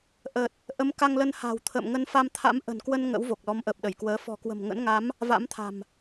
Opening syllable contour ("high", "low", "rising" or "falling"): low